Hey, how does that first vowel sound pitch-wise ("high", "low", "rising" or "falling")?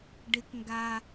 rising